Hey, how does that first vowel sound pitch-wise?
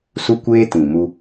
high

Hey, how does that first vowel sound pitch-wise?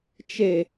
low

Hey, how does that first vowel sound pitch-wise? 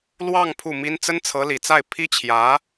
falling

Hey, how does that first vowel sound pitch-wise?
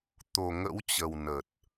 low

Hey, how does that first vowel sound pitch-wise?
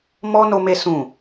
high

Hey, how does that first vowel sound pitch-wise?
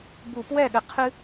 low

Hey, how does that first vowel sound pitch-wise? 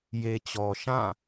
low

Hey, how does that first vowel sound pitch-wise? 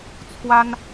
high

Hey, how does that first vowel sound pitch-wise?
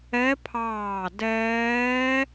rising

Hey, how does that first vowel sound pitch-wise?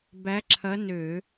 rising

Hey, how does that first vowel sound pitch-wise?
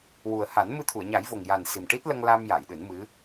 low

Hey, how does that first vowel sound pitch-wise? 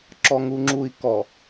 low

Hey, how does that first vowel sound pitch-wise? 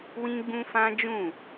high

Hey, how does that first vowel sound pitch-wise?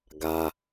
high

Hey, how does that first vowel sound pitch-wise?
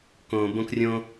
low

